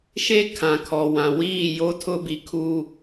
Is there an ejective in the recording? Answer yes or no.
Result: no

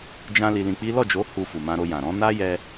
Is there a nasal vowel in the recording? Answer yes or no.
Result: yes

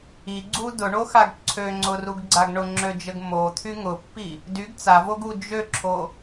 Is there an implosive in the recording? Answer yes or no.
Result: no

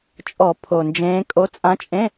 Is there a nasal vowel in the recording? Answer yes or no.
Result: yes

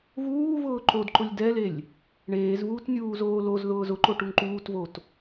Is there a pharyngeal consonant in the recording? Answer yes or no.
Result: no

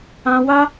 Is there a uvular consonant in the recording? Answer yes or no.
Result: no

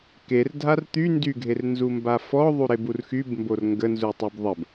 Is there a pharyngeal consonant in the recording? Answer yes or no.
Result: no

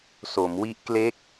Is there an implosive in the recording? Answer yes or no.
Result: no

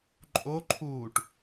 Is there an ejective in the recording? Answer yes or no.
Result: yes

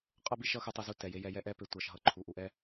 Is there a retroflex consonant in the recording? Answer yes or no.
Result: no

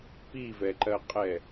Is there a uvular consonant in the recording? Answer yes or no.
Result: yes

